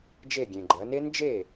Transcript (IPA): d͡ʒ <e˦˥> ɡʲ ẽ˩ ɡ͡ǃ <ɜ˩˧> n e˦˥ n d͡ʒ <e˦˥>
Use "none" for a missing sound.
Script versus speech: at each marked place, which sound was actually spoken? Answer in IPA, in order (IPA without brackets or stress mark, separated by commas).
e˧˩, ɜ˩˧, e˥˩